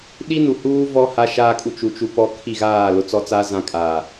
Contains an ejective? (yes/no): yes